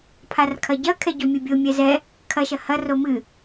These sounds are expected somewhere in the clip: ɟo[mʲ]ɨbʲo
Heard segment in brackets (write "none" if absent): mʲ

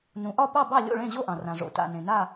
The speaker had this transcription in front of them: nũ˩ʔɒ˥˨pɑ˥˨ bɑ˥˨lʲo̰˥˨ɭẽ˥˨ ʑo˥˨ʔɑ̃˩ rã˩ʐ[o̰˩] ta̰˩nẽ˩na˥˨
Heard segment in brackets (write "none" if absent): o̰˩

